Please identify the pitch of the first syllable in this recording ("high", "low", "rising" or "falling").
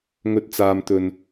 low